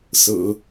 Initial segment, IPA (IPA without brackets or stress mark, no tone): s